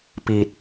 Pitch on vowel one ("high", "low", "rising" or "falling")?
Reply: low